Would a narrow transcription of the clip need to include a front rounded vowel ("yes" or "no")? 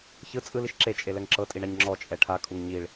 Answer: no